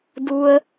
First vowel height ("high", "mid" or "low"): high